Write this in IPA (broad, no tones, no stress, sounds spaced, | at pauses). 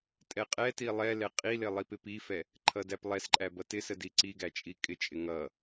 tʼ ɛ qʼ ɛ t i lˠ ɛ l ɛ qʼ i l ɪ lˠ i p ɪ p i f ɛ | ǃʰ ʌ d æ p lˠ ɛ s ǃʼ æ b ʌ t ɪ s ə d i ǀ i ɡ æ t͡ʃʼ i kʼ ɪ t͡ʃʼ ɪ ŋ ʌ